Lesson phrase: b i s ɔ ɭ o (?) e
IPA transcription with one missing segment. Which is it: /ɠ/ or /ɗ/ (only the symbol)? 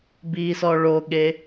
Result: ɠ